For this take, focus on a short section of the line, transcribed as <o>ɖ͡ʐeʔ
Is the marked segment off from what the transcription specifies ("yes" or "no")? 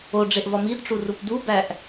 no